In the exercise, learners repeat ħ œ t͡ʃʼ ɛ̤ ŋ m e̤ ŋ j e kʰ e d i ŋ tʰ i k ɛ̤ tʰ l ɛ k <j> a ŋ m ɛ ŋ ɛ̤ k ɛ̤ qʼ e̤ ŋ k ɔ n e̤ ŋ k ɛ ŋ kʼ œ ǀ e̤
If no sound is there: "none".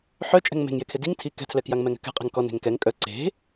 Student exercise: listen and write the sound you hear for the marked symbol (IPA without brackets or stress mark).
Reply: j